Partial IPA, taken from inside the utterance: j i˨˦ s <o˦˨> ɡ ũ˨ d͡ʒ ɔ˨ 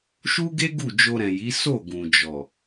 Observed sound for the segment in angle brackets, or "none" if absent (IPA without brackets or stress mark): o˦˨